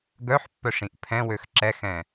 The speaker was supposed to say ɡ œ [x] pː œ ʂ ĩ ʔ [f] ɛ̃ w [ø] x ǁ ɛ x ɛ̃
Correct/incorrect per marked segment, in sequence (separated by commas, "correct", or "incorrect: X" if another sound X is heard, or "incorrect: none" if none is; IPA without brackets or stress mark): incorrect: ħ, incorrect: pʰ, correct